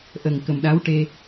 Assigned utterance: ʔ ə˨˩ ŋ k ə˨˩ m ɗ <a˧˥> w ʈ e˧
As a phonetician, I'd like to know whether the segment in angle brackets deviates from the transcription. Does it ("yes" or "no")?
no